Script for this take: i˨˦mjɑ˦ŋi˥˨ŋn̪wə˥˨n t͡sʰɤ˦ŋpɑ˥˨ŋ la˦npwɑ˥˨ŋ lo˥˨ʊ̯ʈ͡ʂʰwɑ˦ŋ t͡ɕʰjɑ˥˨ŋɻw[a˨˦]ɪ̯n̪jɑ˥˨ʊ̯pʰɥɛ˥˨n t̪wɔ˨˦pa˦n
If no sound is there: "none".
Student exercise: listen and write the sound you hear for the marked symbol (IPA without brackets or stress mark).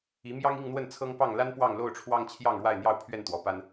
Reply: a˥˨